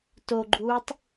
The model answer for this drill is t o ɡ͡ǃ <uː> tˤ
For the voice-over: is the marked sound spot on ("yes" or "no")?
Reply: yes